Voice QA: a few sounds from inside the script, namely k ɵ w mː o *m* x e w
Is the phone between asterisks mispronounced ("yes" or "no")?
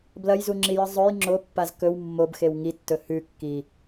yes